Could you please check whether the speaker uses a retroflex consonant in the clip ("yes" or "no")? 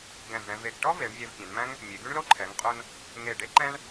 yes